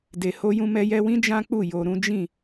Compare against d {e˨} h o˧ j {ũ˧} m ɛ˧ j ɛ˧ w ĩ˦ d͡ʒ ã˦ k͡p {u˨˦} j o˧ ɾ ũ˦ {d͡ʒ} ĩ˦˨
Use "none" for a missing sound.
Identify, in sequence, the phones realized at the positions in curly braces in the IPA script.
e˨, ũ˧, u˦˨, d͡ʒ

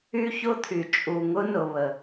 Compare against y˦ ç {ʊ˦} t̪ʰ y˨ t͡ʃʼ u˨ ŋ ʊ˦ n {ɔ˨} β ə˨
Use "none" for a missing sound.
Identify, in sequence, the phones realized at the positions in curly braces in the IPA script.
ʊ˦, ʊ˨

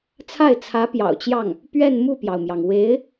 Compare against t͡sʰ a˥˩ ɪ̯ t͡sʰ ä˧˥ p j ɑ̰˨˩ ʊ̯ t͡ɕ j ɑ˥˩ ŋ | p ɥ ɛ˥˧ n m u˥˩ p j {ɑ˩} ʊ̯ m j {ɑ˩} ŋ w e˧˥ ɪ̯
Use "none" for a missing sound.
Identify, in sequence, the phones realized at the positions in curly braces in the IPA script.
ɑ˩, ɑ˩

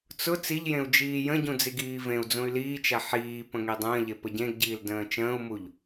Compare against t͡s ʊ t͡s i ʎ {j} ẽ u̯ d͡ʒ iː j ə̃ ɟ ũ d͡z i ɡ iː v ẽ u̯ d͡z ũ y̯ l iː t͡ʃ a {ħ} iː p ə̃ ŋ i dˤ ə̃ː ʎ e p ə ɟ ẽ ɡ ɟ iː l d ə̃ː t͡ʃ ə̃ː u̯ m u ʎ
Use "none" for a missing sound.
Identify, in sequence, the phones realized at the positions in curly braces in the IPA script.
j, ħ

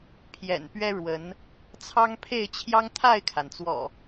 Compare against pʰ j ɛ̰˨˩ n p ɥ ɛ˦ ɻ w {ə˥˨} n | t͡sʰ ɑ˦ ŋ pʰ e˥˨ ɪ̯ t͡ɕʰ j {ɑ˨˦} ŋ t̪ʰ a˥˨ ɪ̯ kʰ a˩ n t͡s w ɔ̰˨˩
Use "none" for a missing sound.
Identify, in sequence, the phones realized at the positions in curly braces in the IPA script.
ə˨˦, ɑ˦

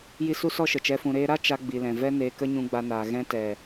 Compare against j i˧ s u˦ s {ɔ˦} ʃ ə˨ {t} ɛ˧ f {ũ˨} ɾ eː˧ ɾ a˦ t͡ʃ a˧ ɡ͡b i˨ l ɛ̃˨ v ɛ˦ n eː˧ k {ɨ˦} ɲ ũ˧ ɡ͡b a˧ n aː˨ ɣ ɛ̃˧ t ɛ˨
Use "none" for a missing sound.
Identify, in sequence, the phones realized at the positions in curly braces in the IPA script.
ɔ˦, t͡ʃ, ũ˨, ə˦

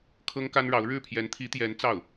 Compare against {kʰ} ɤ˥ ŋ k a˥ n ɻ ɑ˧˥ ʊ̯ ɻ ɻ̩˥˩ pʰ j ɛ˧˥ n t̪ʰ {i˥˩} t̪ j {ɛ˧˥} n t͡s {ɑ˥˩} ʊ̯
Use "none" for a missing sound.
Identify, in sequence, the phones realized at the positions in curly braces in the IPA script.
kʰ, i˧˥, ɛ˧˥, ɑ˥˩

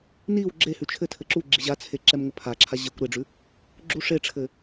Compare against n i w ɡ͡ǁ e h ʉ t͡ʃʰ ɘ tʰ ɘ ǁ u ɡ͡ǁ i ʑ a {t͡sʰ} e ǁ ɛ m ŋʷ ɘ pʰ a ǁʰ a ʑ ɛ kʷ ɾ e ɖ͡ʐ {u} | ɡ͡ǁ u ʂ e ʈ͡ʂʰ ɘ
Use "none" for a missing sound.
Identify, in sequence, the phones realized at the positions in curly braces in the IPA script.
t͡sʰ, ʉ

